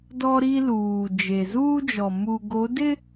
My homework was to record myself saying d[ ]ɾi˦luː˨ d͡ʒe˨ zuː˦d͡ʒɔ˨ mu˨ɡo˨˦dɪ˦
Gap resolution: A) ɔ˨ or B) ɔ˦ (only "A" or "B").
B